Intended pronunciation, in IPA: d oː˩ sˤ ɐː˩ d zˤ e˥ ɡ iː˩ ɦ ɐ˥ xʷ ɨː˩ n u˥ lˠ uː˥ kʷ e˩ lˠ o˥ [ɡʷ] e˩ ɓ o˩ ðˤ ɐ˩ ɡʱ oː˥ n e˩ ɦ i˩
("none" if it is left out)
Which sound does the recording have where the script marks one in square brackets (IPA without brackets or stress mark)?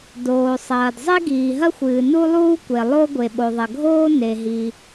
ɡʷ